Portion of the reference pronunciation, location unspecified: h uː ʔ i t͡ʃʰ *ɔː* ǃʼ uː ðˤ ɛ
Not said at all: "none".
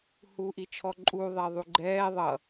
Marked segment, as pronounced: ɔ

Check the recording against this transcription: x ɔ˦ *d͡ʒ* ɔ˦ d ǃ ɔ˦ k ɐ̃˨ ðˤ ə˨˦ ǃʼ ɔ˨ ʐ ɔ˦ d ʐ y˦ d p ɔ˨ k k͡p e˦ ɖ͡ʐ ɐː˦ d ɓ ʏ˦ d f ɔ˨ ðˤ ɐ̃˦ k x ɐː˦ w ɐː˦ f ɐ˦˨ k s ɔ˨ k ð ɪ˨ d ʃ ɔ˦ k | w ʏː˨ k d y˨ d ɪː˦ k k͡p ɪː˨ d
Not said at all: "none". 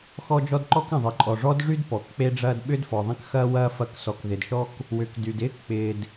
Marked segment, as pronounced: d͡ʒ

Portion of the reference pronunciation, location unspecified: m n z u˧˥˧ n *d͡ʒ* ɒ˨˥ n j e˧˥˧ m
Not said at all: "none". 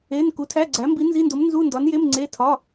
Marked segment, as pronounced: d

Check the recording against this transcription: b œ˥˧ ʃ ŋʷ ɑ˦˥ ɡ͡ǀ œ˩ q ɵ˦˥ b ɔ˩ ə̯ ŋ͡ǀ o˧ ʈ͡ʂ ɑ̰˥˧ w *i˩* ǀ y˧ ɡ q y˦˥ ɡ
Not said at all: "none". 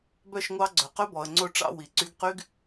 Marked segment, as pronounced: i˩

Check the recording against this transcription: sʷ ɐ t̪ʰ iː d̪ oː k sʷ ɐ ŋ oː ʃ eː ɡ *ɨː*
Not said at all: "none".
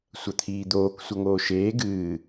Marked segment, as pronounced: ɨː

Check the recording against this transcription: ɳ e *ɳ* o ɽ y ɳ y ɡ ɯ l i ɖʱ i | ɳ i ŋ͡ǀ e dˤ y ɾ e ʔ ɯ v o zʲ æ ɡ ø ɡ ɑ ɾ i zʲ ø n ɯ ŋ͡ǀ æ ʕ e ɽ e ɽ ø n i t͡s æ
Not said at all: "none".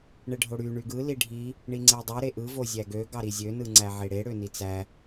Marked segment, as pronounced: ɖʱ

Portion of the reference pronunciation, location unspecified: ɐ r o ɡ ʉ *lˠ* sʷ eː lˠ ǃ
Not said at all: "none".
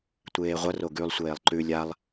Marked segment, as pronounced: lˠ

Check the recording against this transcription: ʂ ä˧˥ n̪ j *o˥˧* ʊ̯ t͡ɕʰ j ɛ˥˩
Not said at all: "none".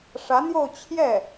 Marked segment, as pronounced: o˥˧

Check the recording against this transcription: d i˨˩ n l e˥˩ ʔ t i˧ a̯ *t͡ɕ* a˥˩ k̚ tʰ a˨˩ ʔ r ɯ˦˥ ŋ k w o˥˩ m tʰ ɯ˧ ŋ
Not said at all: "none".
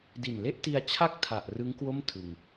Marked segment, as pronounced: t͡ɕʰ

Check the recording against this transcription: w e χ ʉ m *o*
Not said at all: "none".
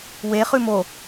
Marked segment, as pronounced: o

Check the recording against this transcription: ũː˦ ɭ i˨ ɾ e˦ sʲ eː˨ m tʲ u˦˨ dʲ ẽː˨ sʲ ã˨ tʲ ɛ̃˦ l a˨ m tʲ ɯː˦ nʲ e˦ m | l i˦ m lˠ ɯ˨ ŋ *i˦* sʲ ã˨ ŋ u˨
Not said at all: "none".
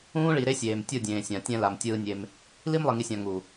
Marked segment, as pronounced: i˨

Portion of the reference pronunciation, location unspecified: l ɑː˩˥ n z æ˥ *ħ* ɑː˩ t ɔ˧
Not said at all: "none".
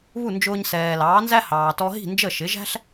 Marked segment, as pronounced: h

